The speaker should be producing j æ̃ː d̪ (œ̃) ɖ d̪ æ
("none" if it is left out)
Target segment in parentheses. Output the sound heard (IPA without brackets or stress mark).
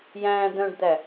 œ̃